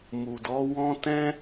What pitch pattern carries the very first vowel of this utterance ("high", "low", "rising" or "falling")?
low